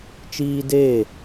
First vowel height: high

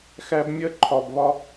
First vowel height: low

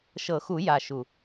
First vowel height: mid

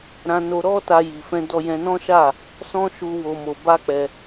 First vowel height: low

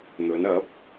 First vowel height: mid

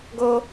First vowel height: mid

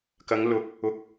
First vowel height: low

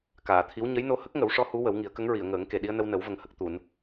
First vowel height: low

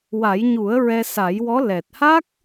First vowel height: low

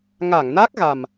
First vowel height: low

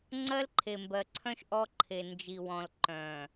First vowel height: mid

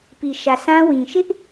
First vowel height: high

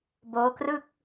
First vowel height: mid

